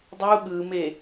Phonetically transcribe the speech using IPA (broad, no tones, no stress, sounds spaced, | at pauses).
dˤ u ɠ ɯ m e